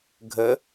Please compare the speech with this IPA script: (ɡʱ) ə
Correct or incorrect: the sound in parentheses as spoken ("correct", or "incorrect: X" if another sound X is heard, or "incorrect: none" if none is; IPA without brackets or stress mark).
correct